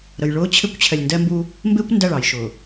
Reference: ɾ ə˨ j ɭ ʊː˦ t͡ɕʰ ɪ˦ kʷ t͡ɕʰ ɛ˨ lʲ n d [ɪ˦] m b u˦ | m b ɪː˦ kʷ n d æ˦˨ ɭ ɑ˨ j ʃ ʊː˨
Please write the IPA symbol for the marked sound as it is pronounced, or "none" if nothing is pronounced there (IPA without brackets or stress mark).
ɛ˦